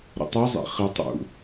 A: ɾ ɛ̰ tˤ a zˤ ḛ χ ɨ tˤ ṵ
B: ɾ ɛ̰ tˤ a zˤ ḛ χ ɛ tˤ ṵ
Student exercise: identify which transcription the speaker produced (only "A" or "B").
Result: B